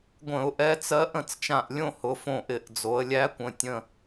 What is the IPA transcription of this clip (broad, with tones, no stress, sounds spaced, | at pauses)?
ɡʷ ə̃˧˩˧ ʊ̯ ʔ ɛ˧˥ t͡s ɜ˧˥ ʔ ə̃˧˩ t͡s t͡ʃ ã˧˩ ʔ lʲ õ˥˨ h ʊ˩˧ f õ˧˩ ʔ ɪ˧˩˧ ʔ d͡z o˩˧ ə̯ lʲ æ˧˥ kʷ ə̃˩˧˩ tʲ ə̃˧˩